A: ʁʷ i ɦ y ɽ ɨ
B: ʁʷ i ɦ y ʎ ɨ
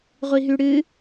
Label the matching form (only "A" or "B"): A